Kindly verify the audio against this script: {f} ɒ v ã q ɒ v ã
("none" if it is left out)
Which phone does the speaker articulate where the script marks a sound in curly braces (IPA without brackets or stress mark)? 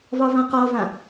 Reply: v